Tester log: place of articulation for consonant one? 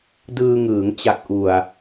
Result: alveolar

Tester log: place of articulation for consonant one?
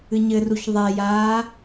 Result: palatal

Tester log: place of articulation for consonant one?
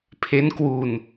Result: labial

